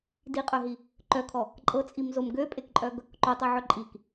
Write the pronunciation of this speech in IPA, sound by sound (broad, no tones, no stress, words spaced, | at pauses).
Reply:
diqʼœɦi | ǃœkʰɔ | ǃʼɤt͡sʼimzom ɡøpʼekǃʼœɡ | ǃotˤøʕœ ǃʼik